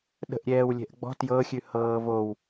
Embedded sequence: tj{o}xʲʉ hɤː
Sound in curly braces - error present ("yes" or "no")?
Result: yes